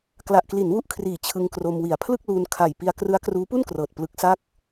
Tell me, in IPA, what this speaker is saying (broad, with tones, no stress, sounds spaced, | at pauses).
k l a˨˩ ʔ k l i˩˦ n w u˦˥ ʔ kʰ r iː˨˩ t͡ɕʰ ɯ˧ ŋ k r o˧ m w i˨˩ a̯ pʰ l ɯ˥˩ k̚ l uː˧ n kʰ a˨˩ j p i˧ a̯ k r ɯ˦˥ a̯ k r uː˦˥ p u˥˩ n k r ɤː˨˩ t̚ p l ɯ˦˥ k̚ s a˥˩ k̚